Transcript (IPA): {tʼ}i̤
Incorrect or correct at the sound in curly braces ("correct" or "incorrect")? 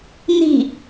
incorrect